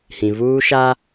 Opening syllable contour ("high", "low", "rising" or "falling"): low